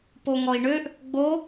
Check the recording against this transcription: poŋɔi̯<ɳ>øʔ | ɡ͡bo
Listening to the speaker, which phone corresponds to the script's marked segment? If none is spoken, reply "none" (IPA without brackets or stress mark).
ɳ